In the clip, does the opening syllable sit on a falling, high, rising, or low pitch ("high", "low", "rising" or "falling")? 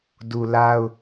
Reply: low